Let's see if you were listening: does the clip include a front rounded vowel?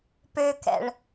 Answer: yes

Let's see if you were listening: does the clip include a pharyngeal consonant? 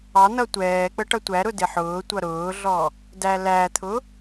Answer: yes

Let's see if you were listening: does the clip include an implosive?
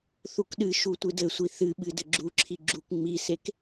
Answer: yes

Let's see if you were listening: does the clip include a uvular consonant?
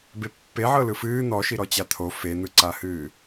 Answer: no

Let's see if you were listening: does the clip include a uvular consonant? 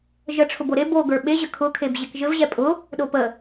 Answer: no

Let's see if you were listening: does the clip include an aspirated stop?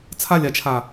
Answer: yes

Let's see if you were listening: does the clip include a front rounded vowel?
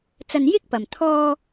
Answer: no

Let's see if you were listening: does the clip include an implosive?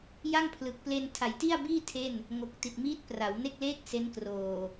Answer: no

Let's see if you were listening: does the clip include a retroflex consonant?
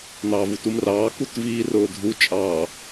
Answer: no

